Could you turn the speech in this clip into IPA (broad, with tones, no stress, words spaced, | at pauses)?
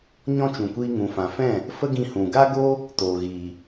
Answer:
ɲɔ̃˦t͡ʃũ˨kʷiː˧ ŋũ˨ fã˨fɛ̃˦˨ | fə˦ɡĩ˧hũ˨ ɡa˦ɡo˦ | toː˨ɣiː˨